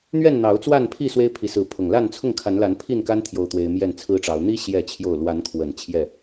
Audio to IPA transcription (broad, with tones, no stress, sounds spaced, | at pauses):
n̪ ɥ ɛ˥˨ n n̪ ɑ˨˦ ʊ̯ t͡s w a˥˨ n pʰ i˥˨ s w e˦ ɪ̯ pʰ i˨˦ s ɹ̩˨˦ pʰ ʊ˨˩ ŋ l a˥˨ n t͡sʰ ʊ˥˨ ŋ kʰ a˨˦ n l a˨˦ n pʰ i˥˨ n k a˦ n t̪ʰ j o˦ ʊ̯ t̪ w e˦ ɪ̯ m j ɛ˥˨ n t͡sʰ ɹ̩˦ ʈ͡ʂ ɑ˨˦ ʊ̯ n̪ i˦ ɕ j ɛ˥˨ t͡ɕʰ j o˥˨ ʊ̯ l w a˨˦ n kʰ w ə˨˩ n t͡ɕʰ j ɛ˥˨